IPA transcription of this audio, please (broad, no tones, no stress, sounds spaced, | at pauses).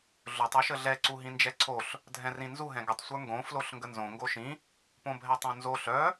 ɮ ɵ tˤ ʉ ʃ ə ɮ ɛ ǀ u ɦ ĩ n d͡ʒ ɛ ǀʰ o ɬ | dʱ ɛ̃ r ĩ n z u ɦ ɛ̃ ɡ ə tˤ sʷ ə˞ ŋ ɡ õ f l o ɬ ŋ ɡ ə n z õ ŋ ɡ o ʃ ĩ | p õ bʱ ɛ tˤ õ n z o ɬ œ